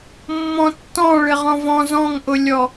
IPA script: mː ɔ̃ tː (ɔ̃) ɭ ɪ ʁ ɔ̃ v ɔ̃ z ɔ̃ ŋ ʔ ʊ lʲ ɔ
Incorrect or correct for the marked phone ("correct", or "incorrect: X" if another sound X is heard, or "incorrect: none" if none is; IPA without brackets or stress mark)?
correct